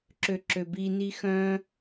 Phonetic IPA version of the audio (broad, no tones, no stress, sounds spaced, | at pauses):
ǁ ø ǁ ø b i n i x œ̃